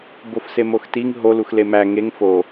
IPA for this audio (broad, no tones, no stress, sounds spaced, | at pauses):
b o f s e m o x t i ŋ ɦ o l u x l e m æ ŋ e ŋ f o